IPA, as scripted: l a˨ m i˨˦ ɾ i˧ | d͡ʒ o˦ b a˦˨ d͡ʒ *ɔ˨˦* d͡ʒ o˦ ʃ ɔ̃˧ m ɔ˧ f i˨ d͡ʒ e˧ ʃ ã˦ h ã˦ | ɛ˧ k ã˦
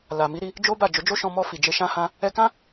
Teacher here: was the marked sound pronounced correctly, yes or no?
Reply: no